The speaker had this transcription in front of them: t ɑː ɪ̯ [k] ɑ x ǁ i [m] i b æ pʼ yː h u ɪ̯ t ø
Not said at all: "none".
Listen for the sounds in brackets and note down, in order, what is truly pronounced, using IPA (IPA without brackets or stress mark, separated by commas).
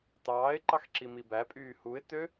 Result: ǃ, m